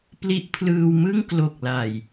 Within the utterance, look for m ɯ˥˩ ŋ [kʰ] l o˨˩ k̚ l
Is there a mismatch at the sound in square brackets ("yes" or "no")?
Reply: yes